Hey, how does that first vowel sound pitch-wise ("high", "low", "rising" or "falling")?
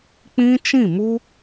high